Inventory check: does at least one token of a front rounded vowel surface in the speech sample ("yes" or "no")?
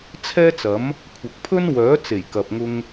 yes